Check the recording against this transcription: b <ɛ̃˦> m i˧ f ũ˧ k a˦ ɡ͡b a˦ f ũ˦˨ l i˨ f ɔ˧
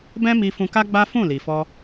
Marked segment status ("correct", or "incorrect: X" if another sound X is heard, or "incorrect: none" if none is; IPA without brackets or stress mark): correct